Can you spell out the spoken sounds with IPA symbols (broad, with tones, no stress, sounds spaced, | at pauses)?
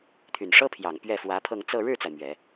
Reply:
t̪ʰ y˨˩ n ʂ ɤ˥ pʰ j ɑ˨˩ ŋ p ɥ ɛ˥˩ f w ä˧˥ pʰ ɤ˥˧ ŋ t͡s ɤ˥˧ ɻ ɻ̩˥˩ t͡s a˩ ɪ̯ m ɥ ɛ˨˩˦